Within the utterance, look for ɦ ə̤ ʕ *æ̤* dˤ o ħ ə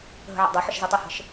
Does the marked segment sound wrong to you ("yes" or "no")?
yes